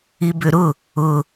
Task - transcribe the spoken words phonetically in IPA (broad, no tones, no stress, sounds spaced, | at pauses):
i b ʏ ɾ ʊ | ʊ